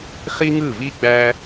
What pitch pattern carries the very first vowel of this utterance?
high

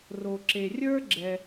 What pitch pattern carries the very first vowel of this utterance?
low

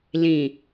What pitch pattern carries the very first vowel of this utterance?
low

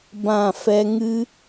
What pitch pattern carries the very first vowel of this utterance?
falling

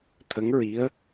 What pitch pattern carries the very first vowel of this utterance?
rising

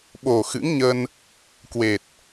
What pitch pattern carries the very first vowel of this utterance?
low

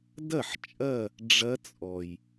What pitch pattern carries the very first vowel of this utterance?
falling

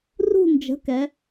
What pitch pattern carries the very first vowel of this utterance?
falling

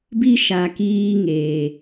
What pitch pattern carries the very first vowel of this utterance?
high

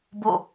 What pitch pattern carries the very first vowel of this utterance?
falling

